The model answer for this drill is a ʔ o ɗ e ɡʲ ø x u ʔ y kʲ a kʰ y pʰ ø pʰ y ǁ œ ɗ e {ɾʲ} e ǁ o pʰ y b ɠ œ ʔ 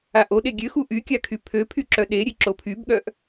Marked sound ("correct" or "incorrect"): correct